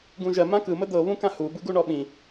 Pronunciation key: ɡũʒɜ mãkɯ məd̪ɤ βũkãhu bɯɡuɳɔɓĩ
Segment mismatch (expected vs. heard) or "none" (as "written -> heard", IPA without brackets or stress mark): none